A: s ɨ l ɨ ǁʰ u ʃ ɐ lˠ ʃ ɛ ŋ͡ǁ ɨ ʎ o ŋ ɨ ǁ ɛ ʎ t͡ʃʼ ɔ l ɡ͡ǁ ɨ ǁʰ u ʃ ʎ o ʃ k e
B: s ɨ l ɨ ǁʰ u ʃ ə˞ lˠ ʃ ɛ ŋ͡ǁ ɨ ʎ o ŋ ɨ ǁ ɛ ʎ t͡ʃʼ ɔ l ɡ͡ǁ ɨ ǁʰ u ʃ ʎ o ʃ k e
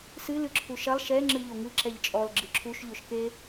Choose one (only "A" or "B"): A